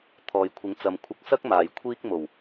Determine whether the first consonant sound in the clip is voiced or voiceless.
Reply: voiceless